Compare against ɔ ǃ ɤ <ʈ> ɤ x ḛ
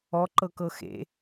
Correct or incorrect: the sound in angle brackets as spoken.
incorrect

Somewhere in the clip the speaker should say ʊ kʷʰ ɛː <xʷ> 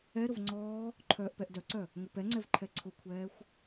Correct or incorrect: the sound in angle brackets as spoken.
correct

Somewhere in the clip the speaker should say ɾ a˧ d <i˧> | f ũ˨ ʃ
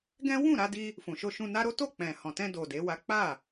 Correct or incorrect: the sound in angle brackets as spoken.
correct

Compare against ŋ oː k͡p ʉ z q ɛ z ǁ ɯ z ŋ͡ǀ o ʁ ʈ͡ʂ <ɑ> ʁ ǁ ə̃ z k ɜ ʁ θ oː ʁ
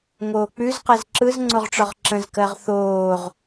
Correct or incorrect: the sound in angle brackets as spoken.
incorrect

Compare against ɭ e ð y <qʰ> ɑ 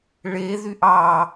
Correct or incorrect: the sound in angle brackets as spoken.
incorrect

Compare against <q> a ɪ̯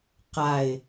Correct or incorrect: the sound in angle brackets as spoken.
correct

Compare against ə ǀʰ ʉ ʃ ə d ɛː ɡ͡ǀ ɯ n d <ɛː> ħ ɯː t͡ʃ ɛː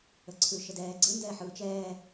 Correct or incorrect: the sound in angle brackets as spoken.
correct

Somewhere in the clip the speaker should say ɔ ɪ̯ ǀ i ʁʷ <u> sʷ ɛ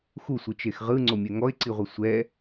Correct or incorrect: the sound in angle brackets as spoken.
incorrect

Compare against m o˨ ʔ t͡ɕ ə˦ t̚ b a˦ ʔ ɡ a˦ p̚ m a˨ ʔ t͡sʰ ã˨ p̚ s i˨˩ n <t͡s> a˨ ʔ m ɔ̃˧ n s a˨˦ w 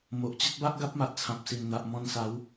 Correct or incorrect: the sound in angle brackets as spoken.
incorrect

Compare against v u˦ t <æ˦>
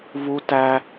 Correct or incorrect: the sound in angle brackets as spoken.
correct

